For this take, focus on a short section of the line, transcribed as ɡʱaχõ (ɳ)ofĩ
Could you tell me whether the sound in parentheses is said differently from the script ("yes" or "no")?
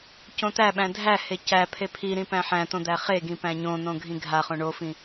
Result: no